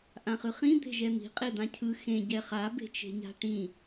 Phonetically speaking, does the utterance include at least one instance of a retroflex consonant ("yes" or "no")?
yes